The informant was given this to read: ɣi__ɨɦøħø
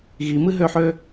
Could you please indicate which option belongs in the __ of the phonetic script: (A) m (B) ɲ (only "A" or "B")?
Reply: A